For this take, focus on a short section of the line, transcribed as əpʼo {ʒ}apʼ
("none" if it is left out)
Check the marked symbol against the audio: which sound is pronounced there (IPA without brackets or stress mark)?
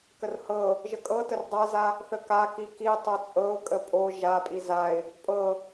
ʒ